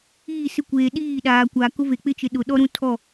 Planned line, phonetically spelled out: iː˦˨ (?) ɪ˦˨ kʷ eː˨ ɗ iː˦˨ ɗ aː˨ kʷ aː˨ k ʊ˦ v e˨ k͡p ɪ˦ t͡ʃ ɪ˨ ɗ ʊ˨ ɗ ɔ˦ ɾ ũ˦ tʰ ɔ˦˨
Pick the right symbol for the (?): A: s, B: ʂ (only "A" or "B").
A